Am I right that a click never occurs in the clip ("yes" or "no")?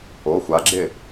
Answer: no